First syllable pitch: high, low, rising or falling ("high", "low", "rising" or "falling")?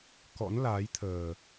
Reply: rising